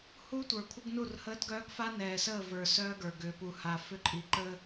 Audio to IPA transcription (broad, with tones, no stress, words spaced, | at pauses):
huː˦tʷə˞˨kʷʰə˦ɡnu˦˨r həː˦dɡœː˦ɡfa˦ nɛː˨səː˦˨və˞˨ sœː˦ɡə˞˨ ɡʏː˨pu˨ ha˨ fʏ˦ǃʼi˨ ǃəː˦